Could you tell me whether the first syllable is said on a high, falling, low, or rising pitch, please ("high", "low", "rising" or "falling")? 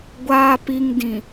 low